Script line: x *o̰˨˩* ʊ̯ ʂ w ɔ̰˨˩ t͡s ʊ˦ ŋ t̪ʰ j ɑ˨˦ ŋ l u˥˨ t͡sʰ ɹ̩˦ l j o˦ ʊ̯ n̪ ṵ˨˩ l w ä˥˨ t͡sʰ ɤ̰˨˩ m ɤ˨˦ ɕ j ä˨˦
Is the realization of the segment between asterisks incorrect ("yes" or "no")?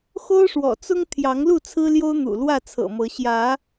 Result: yes